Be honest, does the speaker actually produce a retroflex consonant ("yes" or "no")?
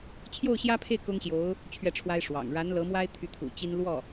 yes